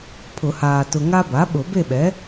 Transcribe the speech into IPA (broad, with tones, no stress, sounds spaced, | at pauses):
pʰ ʊ˨˩˦ h aː˨ t ʊ˨ ŋ a˦ b a˩˥ ɓ ʊ˨˩˦ b e˥˨ ɓ ɛ˩˥